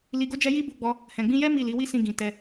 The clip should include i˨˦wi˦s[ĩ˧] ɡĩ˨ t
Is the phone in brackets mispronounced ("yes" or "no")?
no